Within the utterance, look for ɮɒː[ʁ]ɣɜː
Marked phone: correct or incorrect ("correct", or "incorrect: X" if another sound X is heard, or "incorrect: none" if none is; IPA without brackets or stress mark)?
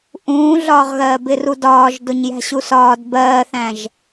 correct